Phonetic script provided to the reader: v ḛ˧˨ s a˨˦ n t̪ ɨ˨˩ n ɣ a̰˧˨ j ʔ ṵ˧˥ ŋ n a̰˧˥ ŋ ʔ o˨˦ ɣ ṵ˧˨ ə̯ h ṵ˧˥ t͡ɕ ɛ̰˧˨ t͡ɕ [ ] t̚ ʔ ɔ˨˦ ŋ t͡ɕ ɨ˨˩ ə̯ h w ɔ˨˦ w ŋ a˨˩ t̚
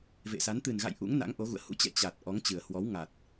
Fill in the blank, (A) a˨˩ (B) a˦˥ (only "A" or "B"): A